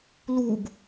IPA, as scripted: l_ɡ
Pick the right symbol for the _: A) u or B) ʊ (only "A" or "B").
A